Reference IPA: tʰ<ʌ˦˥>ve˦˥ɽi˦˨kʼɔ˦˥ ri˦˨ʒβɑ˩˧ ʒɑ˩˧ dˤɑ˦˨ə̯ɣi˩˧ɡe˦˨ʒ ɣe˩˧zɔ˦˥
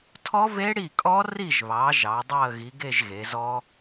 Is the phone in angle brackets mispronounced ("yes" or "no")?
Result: yes